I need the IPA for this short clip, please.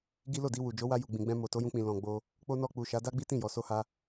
ɡ i˦ l o˦˨ d i˧ w u˨ d͡ʒ o˨˦ w a˧ j u˨ ɡ͡b ĩ˨ ɡ͡b ɛ̃˧ m o˨ t o˨˦ j ũ˧ k͡p ĩ˨ l ɔ̃˨ ɡ͡b o˧ | k͡p o˦ n ɔ˦˨ k͡p u˨ ʃ a˨˦ d a˦ ɡ͡b i˦ t ĩ˦˨ j ɔ˨ s o˧ h a˧

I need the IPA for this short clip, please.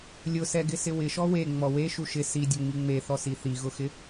lʲ ʊ s ɛ ɡ ɪ s ɪ w ɪ ʃ ɔ w e ŋ͡m ɔ w e ʃ u ʃ ɪ s i dʲ ʊ ŋ͡m i ŋ͡m e θ ɔ s i θ i ɣ ʊ x ɪ

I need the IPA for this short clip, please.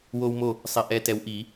w oː˦ w m o˦˨ | sˤ i˨˦ ʔ ɛː˨˦ t ɛ˨˦ w ʔ i˨˩˦

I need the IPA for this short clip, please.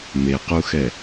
m e q u x ɛ

